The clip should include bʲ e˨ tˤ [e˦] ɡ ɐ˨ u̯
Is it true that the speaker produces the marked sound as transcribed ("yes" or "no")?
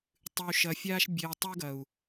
no